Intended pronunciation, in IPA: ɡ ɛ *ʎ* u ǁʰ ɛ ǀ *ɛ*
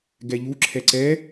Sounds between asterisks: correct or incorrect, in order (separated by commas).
correct, correct